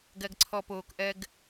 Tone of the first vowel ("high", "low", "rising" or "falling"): low